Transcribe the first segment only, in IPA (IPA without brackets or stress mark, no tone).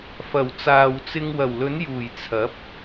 f